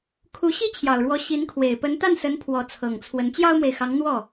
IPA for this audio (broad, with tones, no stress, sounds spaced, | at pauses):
kʰ u˧˥ ɕ i˥ t͡ɕʰ j ɑ˨˩ ʊ̯ ɻ w ɔ˧˥ ɕ i˧˥ n kʰ w e˨˩ ɪ̯ p ə˧˥ n t̪ a˥˩ n s ə˧˥ n pʰ w ɔ˧˥ t͡sʰ ɤ˨˩ ŋ t͡sʰ w ə˧˥ n t͡ɕ j ɑ˥ ʊ̯ m w e˨ ɪ̯ x ɑ˧˥ ŋ n̪ w ɔ˥˩